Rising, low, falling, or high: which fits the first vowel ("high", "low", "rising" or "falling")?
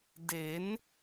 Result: rising